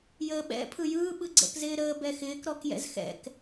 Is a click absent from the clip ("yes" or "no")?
no